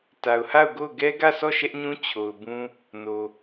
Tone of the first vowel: low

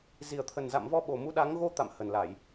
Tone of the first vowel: low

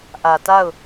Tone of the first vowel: low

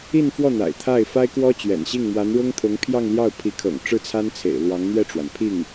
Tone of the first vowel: falling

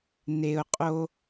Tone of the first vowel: low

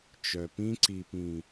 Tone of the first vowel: low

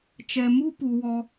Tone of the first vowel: low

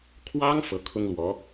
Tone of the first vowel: high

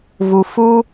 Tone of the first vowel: low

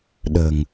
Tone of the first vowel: low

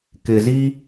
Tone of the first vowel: low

